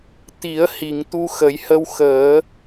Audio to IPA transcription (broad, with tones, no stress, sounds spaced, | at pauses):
t̪ i˨˩˦ ə̯ h i˨˩˨ ŋ t̪ u˧ x ə˨˩˦ j h ə˧ w x əː˨˩˦